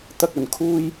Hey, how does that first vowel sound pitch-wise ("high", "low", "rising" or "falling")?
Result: high